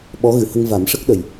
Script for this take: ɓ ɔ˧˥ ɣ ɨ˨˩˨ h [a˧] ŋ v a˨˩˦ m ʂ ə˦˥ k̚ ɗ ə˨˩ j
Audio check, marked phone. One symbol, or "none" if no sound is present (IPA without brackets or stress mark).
ə˧